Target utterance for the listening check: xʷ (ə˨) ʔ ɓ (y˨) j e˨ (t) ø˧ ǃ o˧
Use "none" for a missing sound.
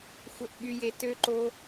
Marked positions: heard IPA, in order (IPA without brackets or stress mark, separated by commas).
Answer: ə˨, y˨, t